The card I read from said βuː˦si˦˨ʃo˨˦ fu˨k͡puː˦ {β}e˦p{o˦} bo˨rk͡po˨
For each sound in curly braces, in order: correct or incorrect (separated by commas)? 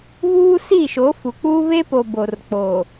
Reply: correct, incorrect